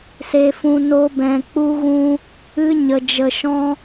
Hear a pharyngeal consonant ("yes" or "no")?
no